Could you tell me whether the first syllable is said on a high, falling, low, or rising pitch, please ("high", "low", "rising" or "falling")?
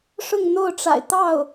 falling